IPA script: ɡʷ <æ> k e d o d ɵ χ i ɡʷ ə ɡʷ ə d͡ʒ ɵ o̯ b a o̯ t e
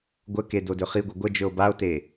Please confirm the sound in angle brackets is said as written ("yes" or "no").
no